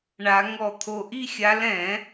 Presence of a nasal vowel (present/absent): present